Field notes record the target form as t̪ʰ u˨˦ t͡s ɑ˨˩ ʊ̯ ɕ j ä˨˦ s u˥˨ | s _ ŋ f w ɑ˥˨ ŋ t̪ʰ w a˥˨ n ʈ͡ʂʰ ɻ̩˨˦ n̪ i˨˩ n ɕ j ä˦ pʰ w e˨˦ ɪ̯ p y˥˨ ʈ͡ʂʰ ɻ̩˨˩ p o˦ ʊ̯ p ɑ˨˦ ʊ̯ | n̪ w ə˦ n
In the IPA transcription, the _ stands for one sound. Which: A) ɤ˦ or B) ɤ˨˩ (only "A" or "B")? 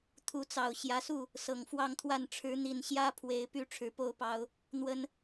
B